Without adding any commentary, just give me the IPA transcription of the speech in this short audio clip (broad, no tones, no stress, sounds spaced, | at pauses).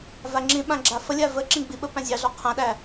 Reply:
v a ŋ͡ǁ ĩ ɓ ã ɡ͡ǁ a f ə lʲ a v ə ǁ ĩ ɡ͡b i ɓ ə p æ̃ zʲ ɑ ɮ ɔ qʰ ã ɗ æ